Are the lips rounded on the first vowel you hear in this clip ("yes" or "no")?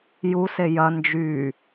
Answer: yes